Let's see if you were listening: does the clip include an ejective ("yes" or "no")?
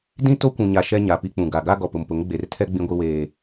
no